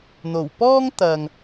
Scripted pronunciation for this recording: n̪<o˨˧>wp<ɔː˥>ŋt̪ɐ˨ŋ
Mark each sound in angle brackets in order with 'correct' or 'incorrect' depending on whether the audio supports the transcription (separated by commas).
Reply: incorrect, correct